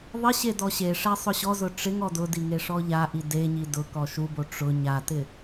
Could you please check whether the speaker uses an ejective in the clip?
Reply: no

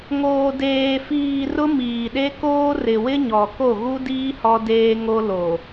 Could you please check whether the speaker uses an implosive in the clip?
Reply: yes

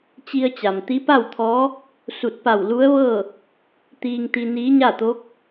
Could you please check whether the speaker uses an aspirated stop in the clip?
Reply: yes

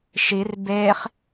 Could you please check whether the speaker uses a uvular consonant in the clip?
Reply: yes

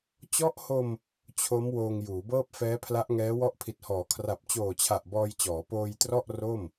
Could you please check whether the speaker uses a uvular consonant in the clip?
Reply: no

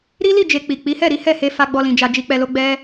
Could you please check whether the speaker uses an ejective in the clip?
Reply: no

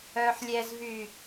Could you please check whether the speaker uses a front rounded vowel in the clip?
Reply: yes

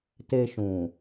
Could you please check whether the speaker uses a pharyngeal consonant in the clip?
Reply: no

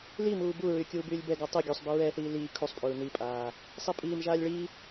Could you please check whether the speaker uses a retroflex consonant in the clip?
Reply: yes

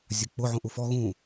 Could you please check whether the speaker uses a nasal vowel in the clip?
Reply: yes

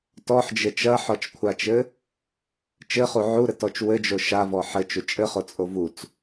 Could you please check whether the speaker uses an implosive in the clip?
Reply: no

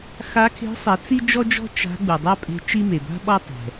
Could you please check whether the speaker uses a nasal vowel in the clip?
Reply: no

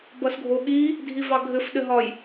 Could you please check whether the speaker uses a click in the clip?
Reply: no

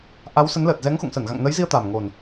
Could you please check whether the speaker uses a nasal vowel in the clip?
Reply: no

